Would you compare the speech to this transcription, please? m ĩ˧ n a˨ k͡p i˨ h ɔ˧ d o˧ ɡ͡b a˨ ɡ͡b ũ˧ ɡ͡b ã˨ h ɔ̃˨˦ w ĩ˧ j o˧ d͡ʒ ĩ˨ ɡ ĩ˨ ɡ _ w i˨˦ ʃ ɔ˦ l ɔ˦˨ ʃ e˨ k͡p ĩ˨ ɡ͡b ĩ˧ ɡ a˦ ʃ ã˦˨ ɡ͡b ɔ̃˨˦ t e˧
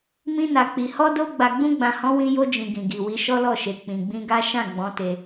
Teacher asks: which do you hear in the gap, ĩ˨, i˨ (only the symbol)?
i˨